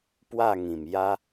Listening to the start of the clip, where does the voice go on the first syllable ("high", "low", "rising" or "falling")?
falling